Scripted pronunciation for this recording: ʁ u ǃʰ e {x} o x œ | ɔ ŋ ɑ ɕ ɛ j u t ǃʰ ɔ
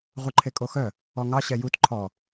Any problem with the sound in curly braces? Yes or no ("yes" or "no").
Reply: yes